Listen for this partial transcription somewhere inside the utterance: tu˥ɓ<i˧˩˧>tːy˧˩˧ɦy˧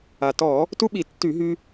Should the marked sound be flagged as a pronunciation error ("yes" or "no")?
no